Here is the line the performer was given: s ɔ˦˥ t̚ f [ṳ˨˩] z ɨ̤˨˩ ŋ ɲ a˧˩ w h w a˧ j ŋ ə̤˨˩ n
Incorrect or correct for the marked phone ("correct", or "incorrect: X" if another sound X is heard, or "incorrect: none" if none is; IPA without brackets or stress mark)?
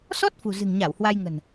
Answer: correct